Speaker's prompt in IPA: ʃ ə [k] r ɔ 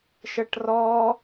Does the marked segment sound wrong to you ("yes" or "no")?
yes